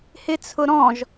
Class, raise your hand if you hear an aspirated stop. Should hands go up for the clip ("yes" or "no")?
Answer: yes